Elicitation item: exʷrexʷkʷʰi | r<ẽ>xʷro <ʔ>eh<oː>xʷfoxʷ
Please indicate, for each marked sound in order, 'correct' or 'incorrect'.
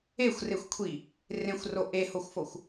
correct, correct, incorrect: o

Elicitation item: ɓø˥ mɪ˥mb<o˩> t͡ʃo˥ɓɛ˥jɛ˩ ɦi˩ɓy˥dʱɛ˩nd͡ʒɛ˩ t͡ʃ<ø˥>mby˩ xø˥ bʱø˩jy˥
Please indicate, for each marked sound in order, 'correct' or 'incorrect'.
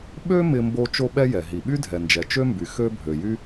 incorrect: o˥, correct

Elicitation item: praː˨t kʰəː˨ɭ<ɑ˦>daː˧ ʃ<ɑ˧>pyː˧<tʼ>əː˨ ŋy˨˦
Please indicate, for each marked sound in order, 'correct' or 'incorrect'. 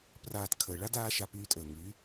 incorrect: a˦, incorrect: a˧, correct

